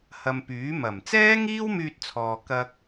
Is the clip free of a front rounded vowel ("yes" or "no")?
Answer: no